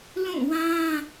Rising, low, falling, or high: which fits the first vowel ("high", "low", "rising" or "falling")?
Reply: falling